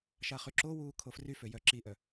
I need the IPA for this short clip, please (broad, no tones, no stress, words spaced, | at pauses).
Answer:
ʃaχyǁowuː kʰofryfø jœǁiʔœ